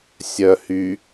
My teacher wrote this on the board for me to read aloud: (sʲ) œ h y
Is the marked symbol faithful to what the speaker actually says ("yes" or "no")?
yes